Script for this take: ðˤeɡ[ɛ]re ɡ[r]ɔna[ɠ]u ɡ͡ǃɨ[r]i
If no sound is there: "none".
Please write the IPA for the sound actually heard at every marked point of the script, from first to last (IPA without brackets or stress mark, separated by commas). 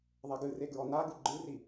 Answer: ɨ, ɹ, ɡ, r